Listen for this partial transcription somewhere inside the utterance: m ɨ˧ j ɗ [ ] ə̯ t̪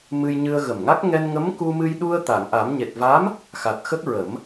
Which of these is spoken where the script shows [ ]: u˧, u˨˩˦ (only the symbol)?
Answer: u˧